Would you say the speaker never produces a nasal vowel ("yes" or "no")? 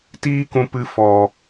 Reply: no